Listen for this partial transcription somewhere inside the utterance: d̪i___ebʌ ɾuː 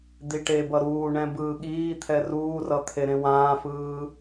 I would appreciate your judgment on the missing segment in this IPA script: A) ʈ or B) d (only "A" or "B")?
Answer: A